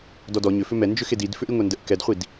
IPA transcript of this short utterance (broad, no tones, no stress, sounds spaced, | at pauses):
d ɔ d ɔ ɲ ʏ f ʏ m ɛ n d͡ʒ ʏ x e d i d f ʏ ʔ i ŋʷ ɛ n d ə ʔ k ɛ d χʷ i d